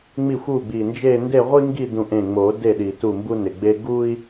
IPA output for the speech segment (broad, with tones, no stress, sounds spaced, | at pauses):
ŋ͡m i˥˩ xʷ u˥˩ ɡ͡b i˧˩ n d͡ʒ e˥˧ n d e˥˧ ʁʷ i˥ ŋ ɡ i˥˧ d ũ˧˩ ʔ ẽ˧˩ ŋ͡m o˨˩˦ d e˥˩ ɗ i˧˩ t u˥˩ m b u˥ n ɪ˧˩ ɡ͡b e˥ ɡ u˥ i̯